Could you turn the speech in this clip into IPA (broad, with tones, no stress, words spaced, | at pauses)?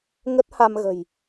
ŋə˦˥t̚ha˧mɣə̤˨˩j